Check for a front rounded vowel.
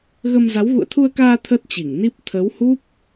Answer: absent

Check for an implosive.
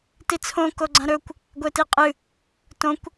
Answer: absent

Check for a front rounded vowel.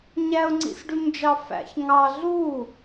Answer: present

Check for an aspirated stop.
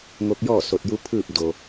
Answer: present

